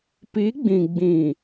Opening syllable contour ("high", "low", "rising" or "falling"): rising